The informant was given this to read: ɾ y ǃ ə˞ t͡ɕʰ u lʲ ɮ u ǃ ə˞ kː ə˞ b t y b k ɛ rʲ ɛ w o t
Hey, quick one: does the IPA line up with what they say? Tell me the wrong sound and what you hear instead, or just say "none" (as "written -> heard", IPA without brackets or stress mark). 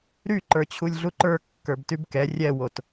none